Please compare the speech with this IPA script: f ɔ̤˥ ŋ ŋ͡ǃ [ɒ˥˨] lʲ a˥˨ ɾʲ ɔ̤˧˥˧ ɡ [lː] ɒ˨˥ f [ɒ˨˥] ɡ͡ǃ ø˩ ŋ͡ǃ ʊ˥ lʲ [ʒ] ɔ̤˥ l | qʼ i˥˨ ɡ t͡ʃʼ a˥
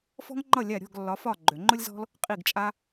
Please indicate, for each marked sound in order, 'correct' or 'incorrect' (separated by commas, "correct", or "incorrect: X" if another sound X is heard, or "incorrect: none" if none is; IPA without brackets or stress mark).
incorrect: ʌ˥˨, correct, incorrect: ɒ˥˨, incorrect: z